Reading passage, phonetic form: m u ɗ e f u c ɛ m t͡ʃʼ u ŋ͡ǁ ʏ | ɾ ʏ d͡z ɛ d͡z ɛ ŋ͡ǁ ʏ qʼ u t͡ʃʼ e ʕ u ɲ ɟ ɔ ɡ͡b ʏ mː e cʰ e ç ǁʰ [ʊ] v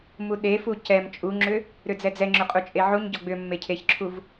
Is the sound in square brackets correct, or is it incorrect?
incorrect